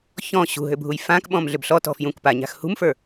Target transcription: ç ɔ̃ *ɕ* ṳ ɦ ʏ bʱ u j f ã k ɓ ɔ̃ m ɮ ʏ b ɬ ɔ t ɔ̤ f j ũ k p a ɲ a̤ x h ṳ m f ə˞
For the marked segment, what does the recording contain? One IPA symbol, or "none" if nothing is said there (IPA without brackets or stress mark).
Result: ɕ